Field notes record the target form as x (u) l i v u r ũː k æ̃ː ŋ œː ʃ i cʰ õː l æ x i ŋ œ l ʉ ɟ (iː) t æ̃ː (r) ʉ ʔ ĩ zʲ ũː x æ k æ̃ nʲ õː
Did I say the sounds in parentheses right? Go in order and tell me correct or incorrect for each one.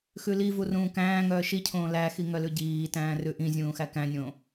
incorrect: ʉ, correct, correct

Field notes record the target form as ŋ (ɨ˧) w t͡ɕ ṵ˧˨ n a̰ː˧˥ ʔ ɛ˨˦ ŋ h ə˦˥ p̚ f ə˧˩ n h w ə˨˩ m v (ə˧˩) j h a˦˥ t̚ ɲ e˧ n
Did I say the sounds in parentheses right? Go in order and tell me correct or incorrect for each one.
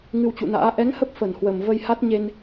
correct, incorrect: ə˧

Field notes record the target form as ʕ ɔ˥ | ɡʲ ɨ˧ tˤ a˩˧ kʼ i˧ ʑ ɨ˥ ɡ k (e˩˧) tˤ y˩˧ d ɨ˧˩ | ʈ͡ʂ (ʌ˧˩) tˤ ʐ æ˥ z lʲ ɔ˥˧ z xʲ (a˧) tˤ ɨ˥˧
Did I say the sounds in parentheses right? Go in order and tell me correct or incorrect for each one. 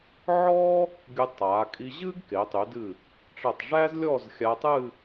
correct, correct, correct

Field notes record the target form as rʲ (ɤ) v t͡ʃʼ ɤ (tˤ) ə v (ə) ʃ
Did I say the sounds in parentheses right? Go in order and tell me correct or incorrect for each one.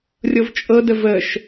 correct, incorrect: d, correct

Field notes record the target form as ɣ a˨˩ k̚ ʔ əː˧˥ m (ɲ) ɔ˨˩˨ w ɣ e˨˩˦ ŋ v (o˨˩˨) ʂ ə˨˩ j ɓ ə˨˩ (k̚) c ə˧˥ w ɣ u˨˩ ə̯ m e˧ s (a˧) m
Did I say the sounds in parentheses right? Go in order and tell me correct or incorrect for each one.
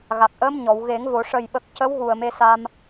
correct, correct, correct, correct

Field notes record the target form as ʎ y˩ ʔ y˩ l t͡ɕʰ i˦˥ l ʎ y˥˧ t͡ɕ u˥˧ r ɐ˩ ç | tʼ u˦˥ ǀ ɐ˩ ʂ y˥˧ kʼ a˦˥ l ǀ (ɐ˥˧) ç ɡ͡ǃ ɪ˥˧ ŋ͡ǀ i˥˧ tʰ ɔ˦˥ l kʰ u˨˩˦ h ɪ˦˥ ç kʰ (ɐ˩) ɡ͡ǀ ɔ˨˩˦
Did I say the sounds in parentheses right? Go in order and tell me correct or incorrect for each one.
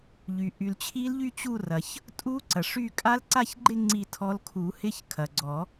incorrect: a˥˧, correct

